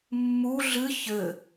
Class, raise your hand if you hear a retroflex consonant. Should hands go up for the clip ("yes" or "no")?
no